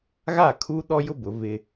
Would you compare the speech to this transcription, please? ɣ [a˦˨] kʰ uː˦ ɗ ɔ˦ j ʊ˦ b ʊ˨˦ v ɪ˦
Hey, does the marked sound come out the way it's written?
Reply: yes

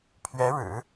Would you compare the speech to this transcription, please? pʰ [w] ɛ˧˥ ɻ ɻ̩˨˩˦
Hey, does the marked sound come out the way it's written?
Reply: no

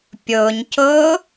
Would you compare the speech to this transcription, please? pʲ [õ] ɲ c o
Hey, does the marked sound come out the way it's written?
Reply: no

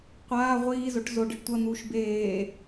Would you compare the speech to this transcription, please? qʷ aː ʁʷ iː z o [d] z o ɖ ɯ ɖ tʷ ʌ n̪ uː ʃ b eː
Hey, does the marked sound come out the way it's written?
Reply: no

